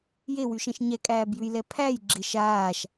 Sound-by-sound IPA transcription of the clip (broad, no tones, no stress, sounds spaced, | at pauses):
j e w y ʃ ɛ̃ ʃ ɲ ɛ kʼ æː b j ʉ j l ɛ pʰ æ j ɡ͡ǁ ɪ ʃ aː ʃ